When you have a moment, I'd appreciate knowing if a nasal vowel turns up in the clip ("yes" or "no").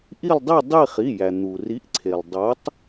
no